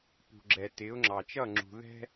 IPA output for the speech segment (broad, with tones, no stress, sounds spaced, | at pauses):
p ṳ˨ ɡ͡ǁ ɛ˨ t ɪː˨˦ ʊ̯ ŋ͡ǁ ɑ˨ t͡ʃ ʌ˦˨ ŋ͡ǁ ṳ˨ ð ɛ̤˦